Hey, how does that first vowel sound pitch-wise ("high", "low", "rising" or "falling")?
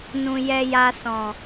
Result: low